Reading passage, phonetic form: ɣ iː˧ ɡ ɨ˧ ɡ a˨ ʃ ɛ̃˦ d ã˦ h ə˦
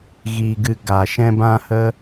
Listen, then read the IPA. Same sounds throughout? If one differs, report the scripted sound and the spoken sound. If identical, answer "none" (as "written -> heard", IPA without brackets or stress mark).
d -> b